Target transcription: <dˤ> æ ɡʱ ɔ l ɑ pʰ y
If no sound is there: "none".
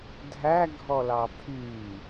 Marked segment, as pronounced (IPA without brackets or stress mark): dʱ